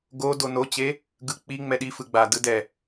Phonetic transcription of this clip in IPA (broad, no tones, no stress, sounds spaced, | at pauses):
ɡ o d o n o t͡ɕ e | ɡ ɯ k͡p i ŋ͡m ɛ ɗ i f ɯ ɡ͡b a d ɯ d ɛ